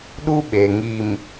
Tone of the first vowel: high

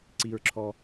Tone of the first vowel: low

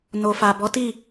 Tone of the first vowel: low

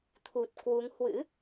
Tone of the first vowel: low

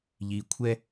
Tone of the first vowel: low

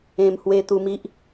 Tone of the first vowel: low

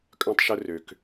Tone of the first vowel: high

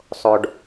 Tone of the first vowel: low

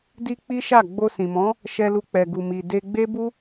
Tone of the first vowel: high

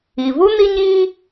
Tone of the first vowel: low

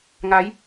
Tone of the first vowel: rising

